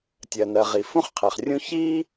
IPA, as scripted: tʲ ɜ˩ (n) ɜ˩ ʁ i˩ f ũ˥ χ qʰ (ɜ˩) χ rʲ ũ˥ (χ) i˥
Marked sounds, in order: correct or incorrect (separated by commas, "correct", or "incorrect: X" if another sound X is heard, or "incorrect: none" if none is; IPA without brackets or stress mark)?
correct, incorrect: ɛ˩, incorrect: ç